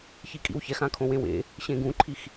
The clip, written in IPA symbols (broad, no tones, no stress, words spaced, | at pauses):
çikʼḭwçɛx ãkʰõwẽwḛ | ɕẽɡũǃʰix